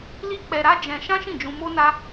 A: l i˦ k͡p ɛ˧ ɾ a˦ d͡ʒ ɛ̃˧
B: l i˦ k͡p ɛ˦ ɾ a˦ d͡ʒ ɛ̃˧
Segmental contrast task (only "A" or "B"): A